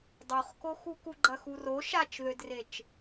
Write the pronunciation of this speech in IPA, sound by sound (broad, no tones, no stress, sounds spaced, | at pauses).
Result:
dˤ o χ k o x u k u ɡ͡ǃ ɐ x u r o ʃ a t͡ʃ ð ø d r e t͡ʃ